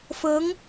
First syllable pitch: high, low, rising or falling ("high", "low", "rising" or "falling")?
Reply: rising